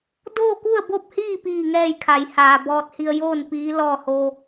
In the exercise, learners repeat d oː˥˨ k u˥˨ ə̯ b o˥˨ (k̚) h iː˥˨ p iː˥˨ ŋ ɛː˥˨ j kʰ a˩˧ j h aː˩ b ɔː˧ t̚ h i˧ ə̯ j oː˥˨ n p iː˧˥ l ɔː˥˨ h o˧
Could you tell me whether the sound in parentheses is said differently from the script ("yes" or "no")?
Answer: yes